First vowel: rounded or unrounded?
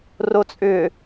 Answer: rounded